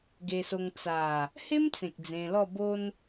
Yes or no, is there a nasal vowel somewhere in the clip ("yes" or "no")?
yes